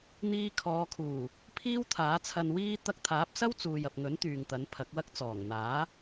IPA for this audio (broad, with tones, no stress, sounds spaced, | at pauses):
n̪ iː˧ kʰ ɔː˨˧ kʰ uː˨˩ | pʰ iː˥ w t̪ʰ aː˨˥ t͡sʰ ɐ˧ n w iː˥ t̪ ɐ˧ k̚ t̪ʰ aː˨˥ p̚ s ɐ˥ w t͡s uː˨ j ɐ˨ p̚ ŋ ɵ˨˥ n t̪ yː˨ ŋ t̪ ɐ˨˥ n pʰ ɐ˨˥ k̚ w ɐ˥ k̚ t͡s ɔː˨˩ ŋ n̪ aː˨˥